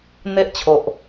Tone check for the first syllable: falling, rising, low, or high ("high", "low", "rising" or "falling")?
high